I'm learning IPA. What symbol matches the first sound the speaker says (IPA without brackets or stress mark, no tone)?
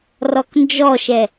r